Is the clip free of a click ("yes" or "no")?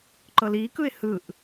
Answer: no